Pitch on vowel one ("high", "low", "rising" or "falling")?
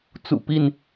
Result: low